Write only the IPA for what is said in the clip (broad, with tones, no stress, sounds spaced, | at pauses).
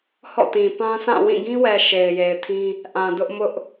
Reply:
h ɔ̰˦˨ t ĩ˨ p ã˦ s ã˦˨ w ĩ˦˨ ɡ ĩ˦ w ɛ˨ ʃ e˨ ɪ̯ j e˨ ɪ̯ tʰ ĩ˦ | ʔ ã˨ d ʊ˦ ʔ m ʊ˦ ʔ